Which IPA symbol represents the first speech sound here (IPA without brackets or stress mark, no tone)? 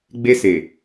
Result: ɡ͡b